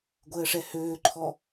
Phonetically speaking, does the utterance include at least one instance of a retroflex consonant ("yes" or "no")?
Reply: yes